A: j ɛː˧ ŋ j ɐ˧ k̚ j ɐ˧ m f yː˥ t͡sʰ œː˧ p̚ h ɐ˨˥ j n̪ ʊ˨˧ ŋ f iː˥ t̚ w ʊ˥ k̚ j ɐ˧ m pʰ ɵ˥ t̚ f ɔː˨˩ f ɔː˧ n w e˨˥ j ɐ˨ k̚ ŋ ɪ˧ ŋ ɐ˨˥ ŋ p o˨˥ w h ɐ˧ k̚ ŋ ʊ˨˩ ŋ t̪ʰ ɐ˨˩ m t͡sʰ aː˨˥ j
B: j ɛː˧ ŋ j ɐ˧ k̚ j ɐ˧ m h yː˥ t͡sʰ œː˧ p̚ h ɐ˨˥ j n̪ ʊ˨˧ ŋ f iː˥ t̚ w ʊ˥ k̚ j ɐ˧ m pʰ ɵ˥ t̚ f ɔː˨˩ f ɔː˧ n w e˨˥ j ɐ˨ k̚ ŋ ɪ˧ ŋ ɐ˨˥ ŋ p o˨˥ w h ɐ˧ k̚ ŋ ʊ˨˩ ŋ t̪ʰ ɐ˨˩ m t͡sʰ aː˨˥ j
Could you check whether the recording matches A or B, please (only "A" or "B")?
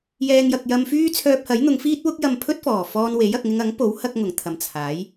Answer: A